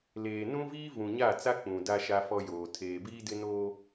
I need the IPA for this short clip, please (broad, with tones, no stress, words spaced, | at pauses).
leː˨ nũ˦viː˦ vũ˨ɲa˦˨ t͡sa˦k͡pũ˨ da˦ʃa˦fɔ˦joː˨ tʰeː˨biː˦dɪ˦ noː˦